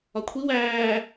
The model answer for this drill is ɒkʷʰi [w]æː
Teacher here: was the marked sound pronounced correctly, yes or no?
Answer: yes